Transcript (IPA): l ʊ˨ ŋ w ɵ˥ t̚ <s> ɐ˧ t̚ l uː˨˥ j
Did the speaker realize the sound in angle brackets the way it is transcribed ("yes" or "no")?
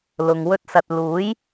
yes